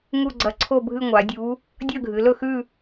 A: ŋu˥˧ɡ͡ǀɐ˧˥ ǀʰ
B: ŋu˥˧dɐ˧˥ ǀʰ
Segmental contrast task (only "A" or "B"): A